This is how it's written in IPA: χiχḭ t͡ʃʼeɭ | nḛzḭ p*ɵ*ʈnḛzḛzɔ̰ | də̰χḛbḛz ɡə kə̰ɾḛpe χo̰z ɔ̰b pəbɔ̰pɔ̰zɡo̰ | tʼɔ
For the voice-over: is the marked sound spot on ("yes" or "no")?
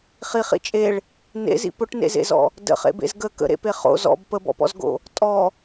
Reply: yes